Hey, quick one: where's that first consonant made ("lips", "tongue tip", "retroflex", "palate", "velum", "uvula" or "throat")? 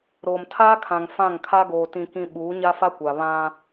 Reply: tongue tip